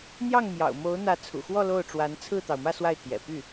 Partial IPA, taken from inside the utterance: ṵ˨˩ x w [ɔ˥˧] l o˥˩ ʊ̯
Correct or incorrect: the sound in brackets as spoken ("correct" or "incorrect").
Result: correct